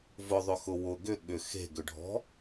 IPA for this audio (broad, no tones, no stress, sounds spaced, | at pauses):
v ʊ ðˤ ʏ x ʊ w ʊ ɡ ʏ ɠ ʏ x e̤ ɡ ʏ ɖʱ ɔ̤